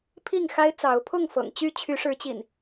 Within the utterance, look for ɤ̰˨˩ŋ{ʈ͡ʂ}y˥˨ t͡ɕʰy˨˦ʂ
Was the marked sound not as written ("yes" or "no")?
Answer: yes